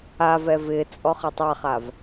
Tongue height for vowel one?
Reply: low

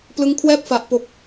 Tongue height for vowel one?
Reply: high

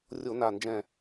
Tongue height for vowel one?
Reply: mid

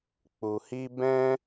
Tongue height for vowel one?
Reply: high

